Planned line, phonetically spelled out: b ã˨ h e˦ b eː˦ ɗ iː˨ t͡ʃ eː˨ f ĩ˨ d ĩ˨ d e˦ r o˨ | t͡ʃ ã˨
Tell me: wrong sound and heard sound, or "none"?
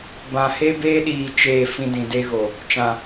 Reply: r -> ɣ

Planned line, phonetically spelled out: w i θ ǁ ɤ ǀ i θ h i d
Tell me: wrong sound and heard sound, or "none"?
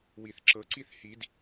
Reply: none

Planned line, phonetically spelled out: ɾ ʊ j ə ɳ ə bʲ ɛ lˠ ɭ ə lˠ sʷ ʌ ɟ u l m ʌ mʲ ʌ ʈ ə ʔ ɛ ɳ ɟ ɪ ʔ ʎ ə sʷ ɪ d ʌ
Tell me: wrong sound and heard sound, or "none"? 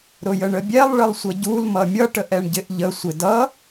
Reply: none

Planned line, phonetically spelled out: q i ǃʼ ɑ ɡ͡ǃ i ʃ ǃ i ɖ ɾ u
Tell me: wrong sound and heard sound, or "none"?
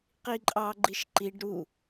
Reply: none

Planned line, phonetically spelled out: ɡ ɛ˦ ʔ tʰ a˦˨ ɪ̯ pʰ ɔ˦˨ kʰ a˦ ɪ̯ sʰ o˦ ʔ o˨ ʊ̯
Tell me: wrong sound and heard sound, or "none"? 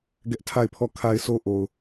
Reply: none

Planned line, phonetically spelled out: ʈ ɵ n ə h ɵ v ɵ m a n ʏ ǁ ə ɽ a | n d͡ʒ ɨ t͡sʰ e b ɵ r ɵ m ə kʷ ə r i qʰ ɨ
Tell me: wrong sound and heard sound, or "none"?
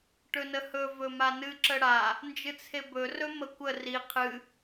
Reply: ʏ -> ɨ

